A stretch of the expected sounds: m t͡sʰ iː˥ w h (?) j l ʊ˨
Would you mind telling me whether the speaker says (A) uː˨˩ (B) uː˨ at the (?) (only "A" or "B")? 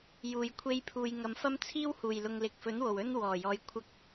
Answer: A